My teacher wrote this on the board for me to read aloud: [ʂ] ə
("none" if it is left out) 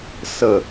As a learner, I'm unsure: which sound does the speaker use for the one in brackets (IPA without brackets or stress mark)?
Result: s